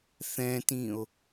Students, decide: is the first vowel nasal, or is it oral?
nasal